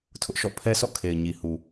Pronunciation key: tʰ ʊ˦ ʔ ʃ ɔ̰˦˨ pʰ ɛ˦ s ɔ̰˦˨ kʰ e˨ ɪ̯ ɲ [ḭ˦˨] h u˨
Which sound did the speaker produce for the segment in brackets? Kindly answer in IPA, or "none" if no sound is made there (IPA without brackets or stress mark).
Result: i˨